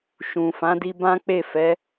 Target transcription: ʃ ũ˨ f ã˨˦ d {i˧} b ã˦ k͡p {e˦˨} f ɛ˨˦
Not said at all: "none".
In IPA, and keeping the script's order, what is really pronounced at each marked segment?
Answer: i˧, e˦˨

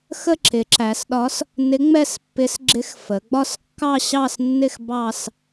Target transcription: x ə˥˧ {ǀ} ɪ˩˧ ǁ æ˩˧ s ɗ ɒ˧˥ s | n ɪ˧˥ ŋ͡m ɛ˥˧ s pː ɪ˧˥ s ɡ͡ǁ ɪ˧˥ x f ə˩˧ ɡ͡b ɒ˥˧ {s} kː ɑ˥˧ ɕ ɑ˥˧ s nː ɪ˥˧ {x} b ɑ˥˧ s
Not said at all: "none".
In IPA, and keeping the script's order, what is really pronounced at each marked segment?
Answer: ǁ, s, x

